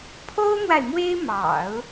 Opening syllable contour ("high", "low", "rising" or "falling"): high